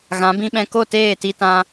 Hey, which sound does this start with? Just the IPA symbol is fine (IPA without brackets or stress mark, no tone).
ɣ